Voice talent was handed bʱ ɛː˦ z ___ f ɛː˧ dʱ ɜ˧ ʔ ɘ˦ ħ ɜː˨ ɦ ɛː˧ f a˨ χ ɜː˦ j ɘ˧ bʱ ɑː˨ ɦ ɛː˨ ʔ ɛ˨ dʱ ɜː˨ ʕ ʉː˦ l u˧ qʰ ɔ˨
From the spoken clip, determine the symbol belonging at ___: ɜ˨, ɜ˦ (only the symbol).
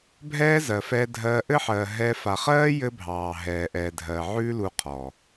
ɜ˨